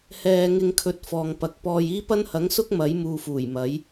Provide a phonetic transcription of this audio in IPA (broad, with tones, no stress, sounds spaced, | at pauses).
h ɛː˨ ŋ ɪ˧ ŋ kʰ ɵ˧ t̚ f ɔː˨ ŋ p ɐ˨˥ k̚ p ɔː˨ j iː˥ p ɐ˥ n h ɐ˨˥ ŋ s ʊ˥ k̚ m ɐ˨˥ j m uː˧ f uː˨˩ j m ɐ˨˥ j